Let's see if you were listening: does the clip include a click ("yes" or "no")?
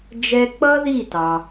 no